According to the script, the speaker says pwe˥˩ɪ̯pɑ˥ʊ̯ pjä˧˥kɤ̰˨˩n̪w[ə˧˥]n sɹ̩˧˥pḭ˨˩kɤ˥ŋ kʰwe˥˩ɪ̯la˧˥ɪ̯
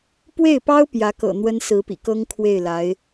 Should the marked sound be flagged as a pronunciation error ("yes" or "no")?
yes